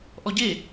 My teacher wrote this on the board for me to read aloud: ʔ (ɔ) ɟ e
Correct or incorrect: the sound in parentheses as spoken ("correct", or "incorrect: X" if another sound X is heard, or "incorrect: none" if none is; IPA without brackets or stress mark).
correct